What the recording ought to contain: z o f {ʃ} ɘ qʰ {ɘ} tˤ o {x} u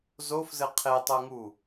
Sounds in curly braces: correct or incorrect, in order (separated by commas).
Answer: incorrect, incorrect, incorrect